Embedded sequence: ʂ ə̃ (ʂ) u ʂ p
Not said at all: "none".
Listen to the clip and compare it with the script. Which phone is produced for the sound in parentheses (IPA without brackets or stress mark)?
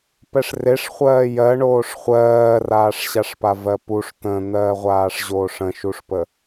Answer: ʃ